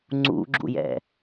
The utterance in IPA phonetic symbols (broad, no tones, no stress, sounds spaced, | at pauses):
ŋ͡ǀ ṵ ɡ͡ǁ ṵ j ɛ̰